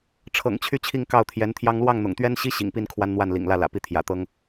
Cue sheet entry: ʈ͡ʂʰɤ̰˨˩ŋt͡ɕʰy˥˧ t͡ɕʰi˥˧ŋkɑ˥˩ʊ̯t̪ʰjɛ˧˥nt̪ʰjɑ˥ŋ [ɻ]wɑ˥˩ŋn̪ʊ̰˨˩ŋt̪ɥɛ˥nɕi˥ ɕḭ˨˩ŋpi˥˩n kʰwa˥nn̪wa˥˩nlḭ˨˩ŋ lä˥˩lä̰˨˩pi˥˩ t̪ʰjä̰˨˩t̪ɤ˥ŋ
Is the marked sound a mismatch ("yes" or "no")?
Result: yes